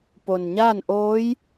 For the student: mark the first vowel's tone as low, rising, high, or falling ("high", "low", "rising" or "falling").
low